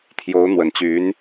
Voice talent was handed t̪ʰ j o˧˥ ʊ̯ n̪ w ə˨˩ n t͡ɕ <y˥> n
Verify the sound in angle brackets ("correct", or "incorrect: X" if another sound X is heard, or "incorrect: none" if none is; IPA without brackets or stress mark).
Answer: incorrect: y˧˥